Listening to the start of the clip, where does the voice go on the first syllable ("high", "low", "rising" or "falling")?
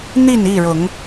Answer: falling